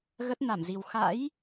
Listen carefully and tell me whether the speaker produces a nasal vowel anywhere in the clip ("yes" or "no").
no